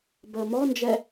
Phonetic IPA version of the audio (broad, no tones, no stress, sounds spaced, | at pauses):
b əː m ɔ n d͡ʒ ɛ